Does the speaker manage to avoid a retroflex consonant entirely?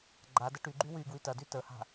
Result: no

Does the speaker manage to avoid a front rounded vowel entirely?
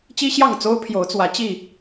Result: yes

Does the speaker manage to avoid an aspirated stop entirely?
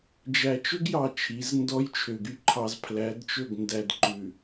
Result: no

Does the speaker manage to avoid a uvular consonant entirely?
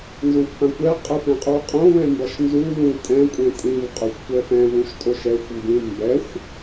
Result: no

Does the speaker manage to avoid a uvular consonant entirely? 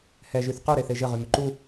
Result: no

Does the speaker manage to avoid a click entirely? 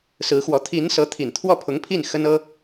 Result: yes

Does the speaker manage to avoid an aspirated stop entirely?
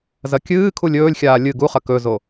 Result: no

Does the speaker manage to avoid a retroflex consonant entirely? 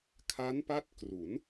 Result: yes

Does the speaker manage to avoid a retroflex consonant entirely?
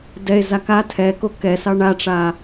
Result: no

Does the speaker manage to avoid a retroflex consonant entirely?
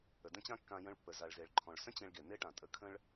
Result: no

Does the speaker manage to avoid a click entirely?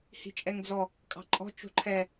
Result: no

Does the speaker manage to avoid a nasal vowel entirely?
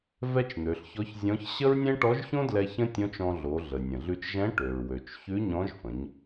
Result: no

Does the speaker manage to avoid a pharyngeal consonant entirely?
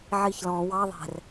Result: no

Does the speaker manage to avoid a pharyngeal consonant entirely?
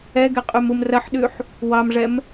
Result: no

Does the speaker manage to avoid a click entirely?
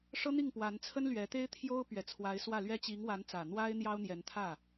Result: yes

